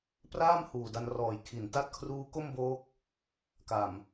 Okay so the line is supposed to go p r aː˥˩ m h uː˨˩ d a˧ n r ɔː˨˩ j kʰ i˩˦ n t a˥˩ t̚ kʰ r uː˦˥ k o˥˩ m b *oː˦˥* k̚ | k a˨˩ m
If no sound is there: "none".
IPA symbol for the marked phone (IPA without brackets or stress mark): oː˦˥